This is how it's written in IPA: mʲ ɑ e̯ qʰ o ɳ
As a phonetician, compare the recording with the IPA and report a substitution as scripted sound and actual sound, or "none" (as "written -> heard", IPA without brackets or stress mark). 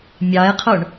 none